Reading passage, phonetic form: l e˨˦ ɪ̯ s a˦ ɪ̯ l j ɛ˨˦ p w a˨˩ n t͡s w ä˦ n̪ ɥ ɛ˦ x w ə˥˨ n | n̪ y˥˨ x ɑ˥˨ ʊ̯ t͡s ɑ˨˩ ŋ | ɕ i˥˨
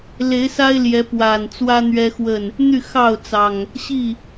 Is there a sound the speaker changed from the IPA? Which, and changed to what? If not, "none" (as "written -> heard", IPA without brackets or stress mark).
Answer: none